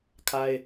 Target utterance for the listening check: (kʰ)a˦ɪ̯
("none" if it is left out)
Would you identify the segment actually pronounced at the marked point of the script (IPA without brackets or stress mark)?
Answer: kʰ